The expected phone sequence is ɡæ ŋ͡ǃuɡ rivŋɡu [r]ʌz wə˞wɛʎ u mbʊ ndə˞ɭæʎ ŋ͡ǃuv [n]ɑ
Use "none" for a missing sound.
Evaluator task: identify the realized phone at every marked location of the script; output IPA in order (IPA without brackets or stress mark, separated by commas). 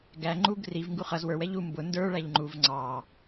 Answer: χ, ŋ͡ǀ